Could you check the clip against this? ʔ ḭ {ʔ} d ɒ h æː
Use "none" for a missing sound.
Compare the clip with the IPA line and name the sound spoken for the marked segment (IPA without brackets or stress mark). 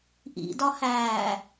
none